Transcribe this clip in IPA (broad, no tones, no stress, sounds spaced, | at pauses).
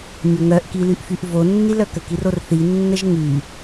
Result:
ɲ o ŋ œ ʔ k i l y ʔ f y ʔ v o nː i l œ k ə k i r o r θ i nː ə ʒ ŋ y